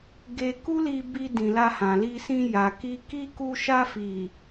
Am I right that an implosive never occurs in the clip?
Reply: yes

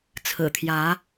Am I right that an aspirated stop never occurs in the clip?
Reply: no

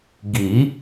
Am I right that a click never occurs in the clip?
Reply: yes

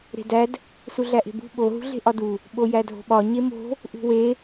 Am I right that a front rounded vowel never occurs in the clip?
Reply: yes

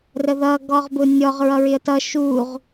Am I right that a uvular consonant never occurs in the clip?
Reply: no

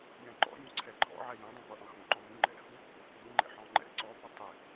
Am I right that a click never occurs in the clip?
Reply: no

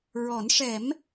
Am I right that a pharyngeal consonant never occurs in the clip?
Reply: yes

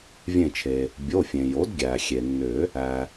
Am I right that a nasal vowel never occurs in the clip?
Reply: no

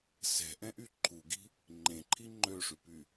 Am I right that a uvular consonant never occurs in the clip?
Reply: yes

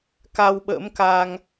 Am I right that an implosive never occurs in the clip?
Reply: no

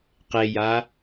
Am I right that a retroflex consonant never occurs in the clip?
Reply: yes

